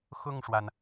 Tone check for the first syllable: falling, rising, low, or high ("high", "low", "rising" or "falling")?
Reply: falling